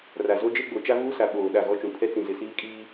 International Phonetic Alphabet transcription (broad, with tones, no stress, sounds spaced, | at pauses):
r a˨ z o˦ d͡ʒ e˦ ɡ͡b o˨ t͡ʃ a˦ v uː˦ s a˨ ɓ oː˨ ɗ a˦˨ ɣ ɔ˦ t͡ʃ ũ˨ pʰ ɛ˦ t͡s ĩ˨ z ɪ˨ s iː˦ kʼ iː˦